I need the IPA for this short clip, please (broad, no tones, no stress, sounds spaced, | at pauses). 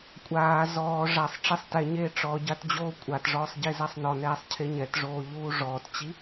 kʷʼ aː z ɔː ʐ a sˤ ʈ͡ʂ e sˤ t ɛ ɲ eː ʈ͡ʂ ɔ ɟ a t d͡ʑ oː kʷʼ a t ʐ ɔː sˤ ɟ e z a sˤ n ɔ n ɛː sˤ cʰ e ɲ ɛ t ʐ oː ʎ uː ʐ ɔː t t͡ɕ i